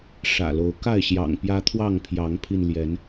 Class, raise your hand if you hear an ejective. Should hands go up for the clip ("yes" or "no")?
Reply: no